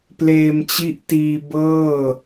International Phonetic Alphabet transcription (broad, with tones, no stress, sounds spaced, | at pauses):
p l eː˧ m t͡ɕ i˦˥ ʔ t iː˧ b ɤː˥˩